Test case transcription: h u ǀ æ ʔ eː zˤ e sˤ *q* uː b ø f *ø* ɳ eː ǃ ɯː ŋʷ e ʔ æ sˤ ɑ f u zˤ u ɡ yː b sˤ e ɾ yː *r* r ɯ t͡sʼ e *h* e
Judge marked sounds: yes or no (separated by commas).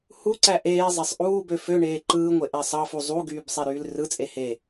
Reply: no, yes, no, yes